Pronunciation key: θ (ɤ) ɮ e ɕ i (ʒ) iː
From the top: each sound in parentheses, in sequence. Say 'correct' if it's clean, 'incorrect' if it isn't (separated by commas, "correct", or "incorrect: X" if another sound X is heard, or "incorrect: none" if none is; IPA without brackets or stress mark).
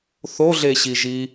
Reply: incorrect: o, correct